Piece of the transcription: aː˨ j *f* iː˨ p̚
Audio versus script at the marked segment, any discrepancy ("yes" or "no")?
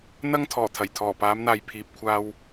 yes